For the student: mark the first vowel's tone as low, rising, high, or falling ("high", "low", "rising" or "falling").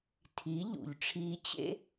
rising